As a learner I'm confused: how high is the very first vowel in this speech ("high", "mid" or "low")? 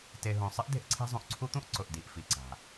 mid